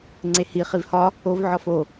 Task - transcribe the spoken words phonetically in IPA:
ŋ͡ǀehi χivhɒ | ov ʕɒfo

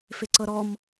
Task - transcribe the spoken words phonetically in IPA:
fɪǀɤɾɔm

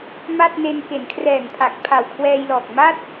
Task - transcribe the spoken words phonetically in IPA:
ma˥˩t̚ne˧n ke˩˦nkʰrɛː˨˩ŋpʰa˨˩k̚ pʰa˨˩wkʰwɛː˧jlɔː˨˩k̚ ma˥˩t̚

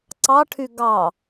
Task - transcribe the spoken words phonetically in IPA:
ǀɑʈʰy ɡɑ

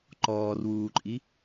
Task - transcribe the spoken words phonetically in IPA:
ǃɔːrwuːǃʼi

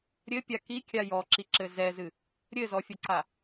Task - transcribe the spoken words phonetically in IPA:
ɾʲɘpʲa kikʲa jɔǁiǁɘ zɛzɨ | ɾʲɘzɔfʲɐǀa

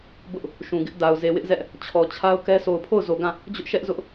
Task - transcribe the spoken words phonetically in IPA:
bʊ˦ʔ | ʃũ˨ɡɪ˦ʔda˨ʊ̯ ze˨wɪ˦ʔzɛ˦ʔ | t͡ɕʰɔ˨t͡ɕʰa˦ʊ̯kɛ˦ so˨ʊ̯pʰo˦˨ʊ̯zo˨ɡã˦˨ | d͡ʑʊ˦ʔʃɛ˦ʔ zʊ˦ʔ

